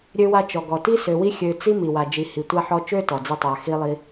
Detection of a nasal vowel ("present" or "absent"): absent